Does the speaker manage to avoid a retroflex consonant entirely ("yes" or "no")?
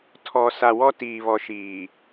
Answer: yes